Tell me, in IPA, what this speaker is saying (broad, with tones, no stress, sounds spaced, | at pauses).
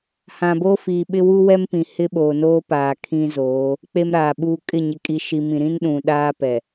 h ã˨ b oː˦ f iː˨ ɓ ɪ˦ w u˦ w ɛ˦ m p ĩ˨ h ɪ˦ ɓ oː˨ n oː˦ p aː˨ kʰ ĩ˦ z oː˨˦ | k͡p e˦ m ɾ aː˨ ɓ uː˦ kʼ ɪ˦˨ ɲ ɪ˨ kʼ i˨ ʃ i˨ m ĩ˨ ɾ ĩ˦ n ɗ ũ˨ ɗ aː˦ p ɛ˨